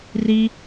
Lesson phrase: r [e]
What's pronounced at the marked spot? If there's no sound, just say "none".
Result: i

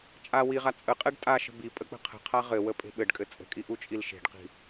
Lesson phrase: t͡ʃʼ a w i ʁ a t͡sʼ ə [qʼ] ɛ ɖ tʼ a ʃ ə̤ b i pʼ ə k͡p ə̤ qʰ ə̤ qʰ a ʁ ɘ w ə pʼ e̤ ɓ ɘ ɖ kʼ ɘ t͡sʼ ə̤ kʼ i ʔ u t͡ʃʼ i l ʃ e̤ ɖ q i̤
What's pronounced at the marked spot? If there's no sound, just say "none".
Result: qʼ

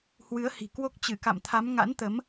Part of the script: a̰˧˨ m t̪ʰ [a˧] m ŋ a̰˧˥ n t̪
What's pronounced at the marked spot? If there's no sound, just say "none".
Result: a˨˦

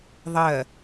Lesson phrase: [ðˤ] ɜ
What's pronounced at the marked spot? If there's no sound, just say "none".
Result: ðˤ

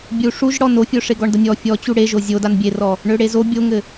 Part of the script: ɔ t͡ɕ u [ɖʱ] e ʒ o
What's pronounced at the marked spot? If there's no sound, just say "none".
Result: ɽ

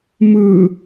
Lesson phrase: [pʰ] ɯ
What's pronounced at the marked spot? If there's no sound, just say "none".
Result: m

